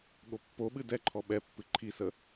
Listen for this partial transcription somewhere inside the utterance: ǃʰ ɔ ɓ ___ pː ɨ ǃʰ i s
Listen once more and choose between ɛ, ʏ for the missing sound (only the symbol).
ɛ